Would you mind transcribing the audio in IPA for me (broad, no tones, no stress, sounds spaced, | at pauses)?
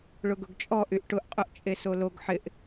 ɭ ʊ ɡ ʊ ɡ t͡ʃʼ ɔ ʔ y ʔ ʈ ʊ ʔ qʼ ʊ ʔ t͡ʃʼ e s o l o ɡ ħ ɪ ʔ